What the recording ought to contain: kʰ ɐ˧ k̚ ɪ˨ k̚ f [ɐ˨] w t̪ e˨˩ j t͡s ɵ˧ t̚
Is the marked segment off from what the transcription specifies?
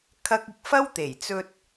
yes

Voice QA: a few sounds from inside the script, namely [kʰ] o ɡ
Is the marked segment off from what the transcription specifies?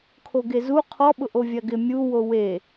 no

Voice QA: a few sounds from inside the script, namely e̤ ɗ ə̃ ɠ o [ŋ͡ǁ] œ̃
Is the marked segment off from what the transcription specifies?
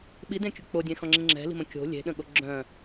yes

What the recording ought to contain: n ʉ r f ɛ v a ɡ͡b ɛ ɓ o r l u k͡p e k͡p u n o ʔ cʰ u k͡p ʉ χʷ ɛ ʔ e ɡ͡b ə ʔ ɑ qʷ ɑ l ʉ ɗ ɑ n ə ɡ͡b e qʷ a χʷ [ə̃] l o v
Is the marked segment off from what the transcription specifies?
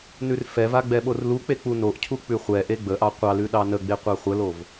yes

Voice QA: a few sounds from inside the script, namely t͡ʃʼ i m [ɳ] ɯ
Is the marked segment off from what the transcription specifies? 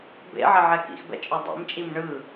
no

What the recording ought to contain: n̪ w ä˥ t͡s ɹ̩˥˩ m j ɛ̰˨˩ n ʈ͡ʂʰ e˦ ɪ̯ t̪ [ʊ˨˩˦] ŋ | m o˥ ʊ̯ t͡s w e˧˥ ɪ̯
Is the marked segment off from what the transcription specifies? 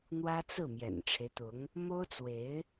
yes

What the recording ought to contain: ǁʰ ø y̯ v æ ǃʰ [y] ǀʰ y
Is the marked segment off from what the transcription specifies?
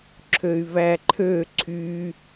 yes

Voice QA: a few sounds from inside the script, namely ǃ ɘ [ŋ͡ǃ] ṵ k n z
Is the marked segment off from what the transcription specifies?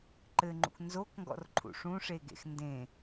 no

